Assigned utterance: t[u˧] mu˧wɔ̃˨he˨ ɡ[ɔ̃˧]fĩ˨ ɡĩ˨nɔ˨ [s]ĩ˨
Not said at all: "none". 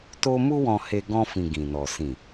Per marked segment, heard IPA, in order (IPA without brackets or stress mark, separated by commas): o˧, ɔ̃˧, s